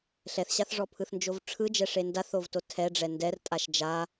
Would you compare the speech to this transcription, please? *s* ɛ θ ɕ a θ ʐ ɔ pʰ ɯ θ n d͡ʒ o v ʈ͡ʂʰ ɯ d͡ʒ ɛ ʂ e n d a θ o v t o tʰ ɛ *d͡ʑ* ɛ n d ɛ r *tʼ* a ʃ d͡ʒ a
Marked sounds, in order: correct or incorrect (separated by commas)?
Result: incorrect, incorrect, correct